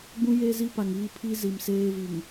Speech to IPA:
ɡ͡b ũ˦ j eː˦ z i˦ p a˨ ŋ iː˦ pʰ i˦ z i˨ m s eː˦ v i˨ ŋ

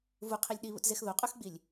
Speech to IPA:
v u qʰ i lʲ ɗ i β ṵ t z e x ð o qʼ ʉ x ɡ͡b i lʲ

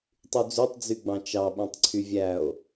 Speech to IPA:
tˤ y d͡z ø tˤ d͡z y ɡ͡b ɑ̃ t͡ʃ ɑ ɓ æ̃ tˤ ǀʰ y vʲ æ o̯

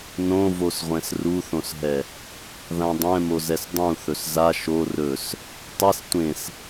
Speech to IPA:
n õ v o s ʁʷ ɛ̃ s r u θ õ s ɦ ɛ | ð ã dˤ ɛ̃ m o z ɛ s dˤ ũ θ ɵ s z a ʃ o r ɵ s | tˤ ɛ s tʷ ẽ s

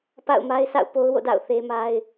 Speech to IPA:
p a̰˦˨ ʊ̯ m a˦ ɪ̯ sʰ a̰˦˨ ʊ̯ p o˦ ʊ̯ w o̰˦˨ d a̰˦˨ ʊ̯ θ e˦ m a˦ ɪ̯

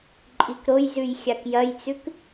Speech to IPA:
ǃʼ i k ɾ o j z ʉ j xʲ a k j ɐ j t͡s ʉ k

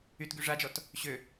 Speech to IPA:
y t ɡ y ʐ a d͡ʒ ɔ t | ɕ ø

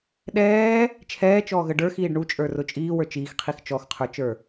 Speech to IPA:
ɗ ɛː | t͡ʃʰ ɛː t͡ʃ ɔː ɣ ə ɖ ə˞ x iː ɖ ɳ u t͡ʃʼ ə˞ r ʊ t͡ʃʼ iː w ə˞ t͡ʃ iː x qʰ i x t͡ʃ ɔ x qʰ ə˞ t͡ʃ ə˞

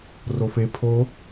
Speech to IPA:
r o f e pʰ o

